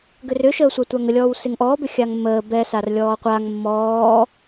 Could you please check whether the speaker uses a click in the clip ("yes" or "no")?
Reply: no